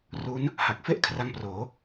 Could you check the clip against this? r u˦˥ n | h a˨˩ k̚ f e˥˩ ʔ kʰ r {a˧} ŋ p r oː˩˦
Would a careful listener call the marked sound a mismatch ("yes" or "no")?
yes